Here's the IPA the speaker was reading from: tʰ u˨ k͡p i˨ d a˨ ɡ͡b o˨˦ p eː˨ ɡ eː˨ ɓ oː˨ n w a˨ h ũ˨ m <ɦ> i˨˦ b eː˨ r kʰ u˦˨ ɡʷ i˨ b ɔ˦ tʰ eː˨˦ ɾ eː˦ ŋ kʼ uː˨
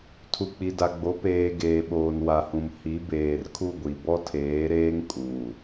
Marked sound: incorrect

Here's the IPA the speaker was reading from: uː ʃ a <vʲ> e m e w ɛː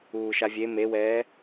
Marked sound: correct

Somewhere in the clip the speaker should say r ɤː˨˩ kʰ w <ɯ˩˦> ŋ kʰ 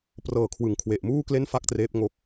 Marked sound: correct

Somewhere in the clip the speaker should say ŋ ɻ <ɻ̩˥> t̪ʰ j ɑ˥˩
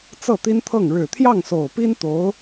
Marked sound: incorrect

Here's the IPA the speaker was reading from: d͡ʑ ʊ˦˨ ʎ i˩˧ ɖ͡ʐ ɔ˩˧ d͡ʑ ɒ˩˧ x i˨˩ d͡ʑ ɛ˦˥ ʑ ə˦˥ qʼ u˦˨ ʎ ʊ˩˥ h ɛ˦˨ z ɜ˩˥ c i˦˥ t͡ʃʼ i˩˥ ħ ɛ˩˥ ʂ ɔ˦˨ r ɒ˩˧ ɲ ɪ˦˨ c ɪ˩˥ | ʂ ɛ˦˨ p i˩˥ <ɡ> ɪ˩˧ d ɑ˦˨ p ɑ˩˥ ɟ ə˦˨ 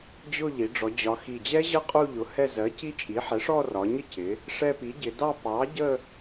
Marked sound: incorrect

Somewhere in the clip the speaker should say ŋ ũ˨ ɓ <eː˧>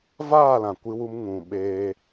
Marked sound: correct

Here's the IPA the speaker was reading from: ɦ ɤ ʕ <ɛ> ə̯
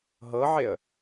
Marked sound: incorrect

